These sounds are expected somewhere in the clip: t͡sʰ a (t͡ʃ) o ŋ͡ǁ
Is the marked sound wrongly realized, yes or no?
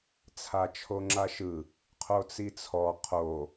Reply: yes